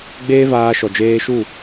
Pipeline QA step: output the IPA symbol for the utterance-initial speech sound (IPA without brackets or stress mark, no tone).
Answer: ɡ͡b